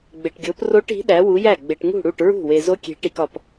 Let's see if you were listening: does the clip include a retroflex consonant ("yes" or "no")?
yes